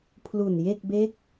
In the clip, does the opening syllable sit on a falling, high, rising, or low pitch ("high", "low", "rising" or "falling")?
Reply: low